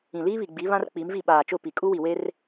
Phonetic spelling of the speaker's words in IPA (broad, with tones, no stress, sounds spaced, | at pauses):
ĩ˨ l iː˦ β i˨ ɡ͡b i˨˦ β ã˦ r k͡p i˨˦ m v i˦˨ ɓ aː˨ t͡ʃ ʊ˦˨ p i˨ kʼ u˦ w i˨ w e˦ r